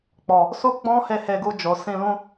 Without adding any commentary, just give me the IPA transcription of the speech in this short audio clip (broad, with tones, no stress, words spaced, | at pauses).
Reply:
k͡pɔ˨ | su˦ ɡ͡bɔ̃˦he˧ he˧ɡu˧ d͡ʒo˨sĩ˧lũ˦